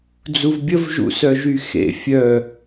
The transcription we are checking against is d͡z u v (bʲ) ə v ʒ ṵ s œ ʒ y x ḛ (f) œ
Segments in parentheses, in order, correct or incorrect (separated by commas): correct, incorrect